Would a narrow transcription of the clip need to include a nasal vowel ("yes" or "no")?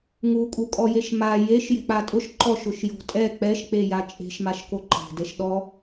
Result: no